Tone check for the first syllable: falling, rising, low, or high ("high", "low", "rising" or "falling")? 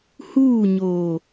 falling